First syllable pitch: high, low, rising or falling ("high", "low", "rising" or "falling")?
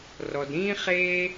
low